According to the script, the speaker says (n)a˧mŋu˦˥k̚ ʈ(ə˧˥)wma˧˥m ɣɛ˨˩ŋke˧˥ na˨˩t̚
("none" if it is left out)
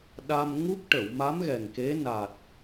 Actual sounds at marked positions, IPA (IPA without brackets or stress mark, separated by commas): ɗ, ə˨˩˨